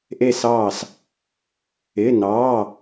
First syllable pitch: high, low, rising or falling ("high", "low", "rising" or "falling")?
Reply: falling